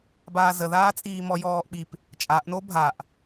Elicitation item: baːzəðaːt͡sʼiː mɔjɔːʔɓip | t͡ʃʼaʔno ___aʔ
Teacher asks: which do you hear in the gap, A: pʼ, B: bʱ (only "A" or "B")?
B